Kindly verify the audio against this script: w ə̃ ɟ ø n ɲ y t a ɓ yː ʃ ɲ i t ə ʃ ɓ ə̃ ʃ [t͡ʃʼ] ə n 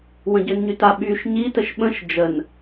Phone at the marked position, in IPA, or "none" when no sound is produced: d͡ʒ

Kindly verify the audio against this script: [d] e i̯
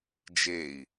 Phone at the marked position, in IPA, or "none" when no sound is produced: d͡ʒ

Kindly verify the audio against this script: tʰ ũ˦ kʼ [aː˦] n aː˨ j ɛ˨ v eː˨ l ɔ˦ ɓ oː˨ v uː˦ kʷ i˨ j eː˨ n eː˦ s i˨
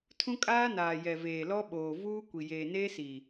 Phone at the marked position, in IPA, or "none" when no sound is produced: aː˦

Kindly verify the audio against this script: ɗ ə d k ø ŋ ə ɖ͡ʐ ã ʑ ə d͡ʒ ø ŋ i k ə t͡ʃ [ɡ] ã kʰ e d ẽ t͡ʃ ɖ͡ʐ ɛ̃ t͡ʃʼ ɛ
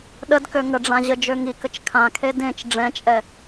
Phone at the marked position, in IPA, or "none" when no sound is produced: kʰ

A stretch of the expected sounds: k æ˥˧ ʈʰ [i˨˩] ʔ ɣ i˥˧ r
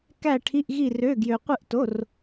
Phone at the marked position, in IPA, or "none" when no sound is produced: i˧˥˧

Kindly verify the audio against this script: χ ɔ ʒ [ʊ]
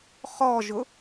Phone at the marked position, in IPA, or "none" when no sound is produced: ʊ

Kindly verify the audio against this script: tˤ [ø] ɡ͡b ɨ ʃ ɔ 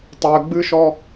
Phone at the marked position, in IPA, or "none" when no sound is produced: ø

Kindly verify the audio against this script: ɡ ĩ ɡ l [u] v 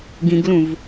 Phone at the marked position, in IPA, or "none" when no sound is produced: ũ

